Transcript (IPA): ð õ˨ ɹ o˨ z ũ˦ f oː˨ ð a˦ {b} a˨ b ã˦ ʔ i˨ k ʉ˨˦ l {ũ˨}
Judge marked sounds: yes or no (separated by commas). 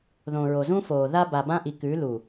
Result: yes, no